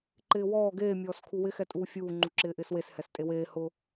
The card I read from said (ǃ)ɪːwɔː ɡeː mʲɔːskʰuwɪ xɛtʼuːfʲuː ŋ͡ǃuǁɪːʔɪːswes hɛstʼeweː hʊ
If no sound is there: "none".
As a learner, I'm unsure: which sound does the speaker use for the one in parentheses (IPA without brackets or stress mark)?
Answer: ǃ